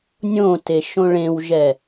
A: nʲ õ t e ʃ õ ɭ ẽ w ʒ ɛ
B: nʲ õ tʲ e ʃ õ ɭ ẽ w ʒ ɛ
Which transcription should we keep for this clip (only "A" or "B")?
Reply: A